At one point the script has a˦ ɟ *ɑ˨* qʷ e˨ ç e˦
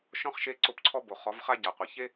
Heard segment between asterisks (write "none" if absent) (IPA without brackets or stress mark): a˨